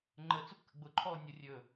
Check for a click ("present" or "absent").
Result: present